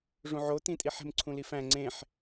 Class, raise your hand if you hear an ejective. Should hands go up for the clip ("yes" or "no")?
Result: yes